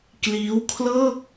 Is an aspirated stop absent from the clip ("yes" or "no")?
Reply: no